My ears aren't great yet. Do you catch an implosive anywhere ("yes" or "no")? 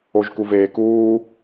no